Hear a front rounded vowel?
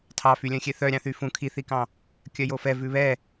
yes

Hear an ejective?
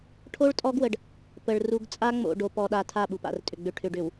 yes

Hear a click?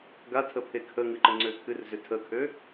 yes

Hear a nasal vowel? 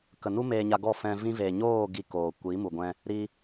yes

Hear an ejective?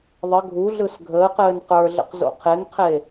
no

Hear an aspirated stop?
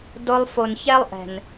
no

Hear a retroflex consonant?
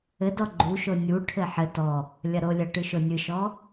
yes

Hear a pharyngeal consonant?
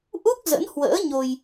no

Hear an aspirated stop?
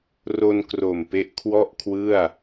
yes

